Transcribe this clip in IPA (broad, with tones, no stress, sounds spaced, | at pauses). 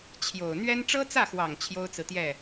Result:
t͡ɕʰ j o˨˩ ʊ̯ n̪ ɥ ɛ˥ n ʈ͡ʂ ɤ˥ t͡s ä˥˩ x w ɑ˨˩ ŋ t͡ɕʰ j o˥ ʊ̯ t͡s ɹ̩˨ t̪ j ɛ˥˩